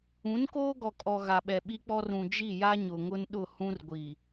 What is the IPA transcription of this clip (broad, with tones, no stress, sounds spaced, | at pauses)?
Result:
ũ˨˦ n k oː˦ ɡ ɔ˨ kʼ ɔ˨ ɣ a˨ ɓ ɛ˨ ɓ i˦ k͡p ɔ˦ r ũ˨ d͡ʒ i˦˨ j a˦ ɲ ʊ˨ ŋ ʊ˦ n ɗ ʊ˦˨ h ũ˦ r ɡʷ i˨